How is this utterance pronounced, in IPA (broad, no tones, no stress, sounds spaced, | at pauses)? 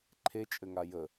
ǃʰ e t͡ʃʼ ɘ ŋ a j ə